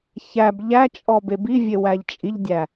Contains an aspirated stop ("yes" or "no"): no